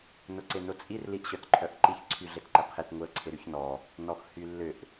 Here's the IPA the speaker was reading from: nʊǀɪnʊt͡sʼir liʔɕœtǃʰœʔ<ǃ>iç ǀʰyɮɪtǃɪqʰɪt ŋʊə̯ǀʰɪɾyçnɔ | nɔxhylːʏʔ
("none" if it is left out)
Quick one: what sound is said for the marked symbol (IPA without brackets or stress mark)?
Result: ǃ